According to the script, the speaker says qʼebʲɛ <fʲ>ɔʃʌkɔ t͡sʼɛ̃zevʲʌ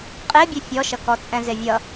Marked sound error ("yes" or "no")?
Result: no